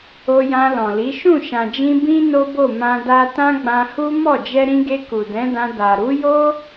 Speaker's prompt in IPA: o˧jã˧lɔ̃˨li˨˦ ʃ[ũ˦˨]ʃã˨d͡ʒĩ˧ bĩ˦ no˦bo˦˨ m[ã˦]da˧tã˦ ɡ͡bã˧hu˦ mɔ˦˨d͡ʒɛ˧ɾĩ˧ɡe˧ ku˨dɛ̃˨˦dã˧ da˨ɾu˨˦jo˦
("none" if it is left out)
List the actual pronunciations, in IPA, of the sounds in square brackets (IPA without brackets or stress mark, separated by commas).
ũ˦˨, ã˧